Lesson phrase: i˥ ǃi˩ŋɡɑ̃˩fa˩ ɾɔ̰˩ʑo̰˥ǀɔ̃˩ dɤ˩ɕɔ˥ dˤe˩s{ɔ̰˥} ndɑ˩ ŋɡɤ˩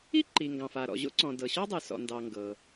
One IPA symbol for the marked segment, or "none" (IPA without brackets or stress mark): ɔ̰˩